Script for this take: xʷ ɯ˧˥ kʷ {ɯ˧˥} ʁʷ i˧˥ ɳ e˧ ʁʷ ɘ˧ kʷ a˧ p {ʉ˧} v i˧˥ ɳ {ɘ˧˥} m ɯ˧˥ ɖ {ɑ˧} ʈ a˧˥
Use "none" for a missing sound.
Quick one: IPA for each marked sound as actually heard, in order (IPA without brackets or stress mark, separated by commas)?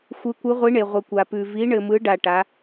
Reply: ɯ˧˥, ʉ˧, ɘ˧, a˧